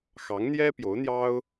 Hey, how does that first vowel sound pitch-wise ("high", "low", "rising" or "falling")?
rising